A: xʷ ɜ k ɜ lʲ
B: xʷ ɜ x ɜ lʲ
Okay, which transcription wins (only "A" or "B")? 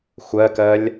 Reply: A